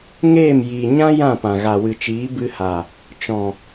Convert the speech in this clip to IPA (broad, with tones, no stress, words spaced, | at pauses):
ŋeː˦˨m jiː˨ɲã˦ jã˦˨pã˨ ɣa˨wɨ˨t͡ʃiː˨˦ bɨ˧ha˨ | t͡ʃɔ̃˨